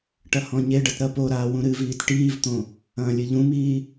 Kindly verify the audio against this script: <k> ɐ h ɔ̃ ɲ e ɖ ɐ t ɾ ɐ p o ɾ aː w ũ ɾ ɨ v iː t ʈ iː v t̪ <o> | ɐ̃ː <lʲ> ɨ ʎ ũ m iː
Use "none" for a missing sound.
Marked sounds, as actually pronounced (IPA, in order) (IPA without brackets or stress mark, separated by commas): ʈ, õ, lʲ